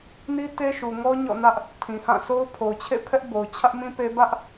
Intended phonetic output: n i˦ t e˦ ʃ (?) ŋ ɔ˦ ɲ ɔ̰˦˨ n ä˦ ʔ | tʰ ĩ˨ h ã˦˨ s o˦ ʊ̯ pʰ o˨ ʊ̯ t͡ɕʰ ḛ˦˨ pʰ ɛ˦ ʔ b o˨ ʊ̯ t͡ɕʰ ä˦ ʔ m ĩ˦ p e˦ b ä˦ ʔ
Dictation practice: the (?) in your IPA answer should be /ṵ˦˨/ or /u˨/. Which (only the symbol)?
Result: u˨